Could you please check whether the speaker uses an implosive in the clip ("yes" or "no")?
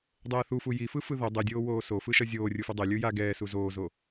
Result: no